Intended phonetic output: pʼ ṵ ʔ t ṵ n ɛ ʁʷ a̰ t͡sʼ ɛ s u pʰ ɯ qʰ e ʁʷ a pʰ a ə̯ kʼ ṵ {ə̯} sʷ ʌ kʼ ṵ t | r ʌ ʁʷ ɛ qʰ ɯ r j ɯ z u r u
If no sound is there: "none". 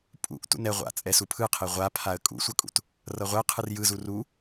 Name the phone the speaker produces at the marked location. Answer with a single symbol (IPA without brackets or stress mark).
none